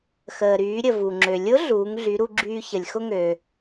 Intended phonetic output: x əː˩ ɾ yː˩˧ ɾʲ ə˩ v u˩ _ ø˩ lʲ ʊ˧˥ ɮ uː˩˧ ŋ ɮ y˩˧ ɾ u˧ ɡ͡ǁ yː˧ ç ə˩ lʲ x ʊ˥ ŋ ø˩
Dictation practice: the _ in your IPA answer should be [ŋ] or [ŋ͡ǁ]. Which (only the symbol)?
ŋ͡ǁ